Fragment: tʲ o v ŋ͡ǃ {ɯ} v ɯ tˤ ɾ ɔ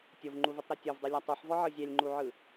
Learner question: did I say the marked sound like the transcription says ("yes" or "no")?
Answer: no